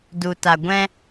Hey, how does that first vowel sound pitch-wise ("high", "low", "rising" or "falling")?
low